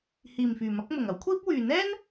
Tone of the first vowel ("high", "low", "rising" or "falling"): low